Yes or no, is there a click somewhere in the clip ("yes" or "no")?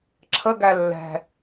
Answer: yes